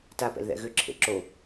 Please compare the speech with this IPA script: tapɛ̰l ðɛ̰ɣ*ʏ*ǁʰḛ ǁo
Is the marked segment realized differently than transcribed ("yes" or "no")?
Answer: no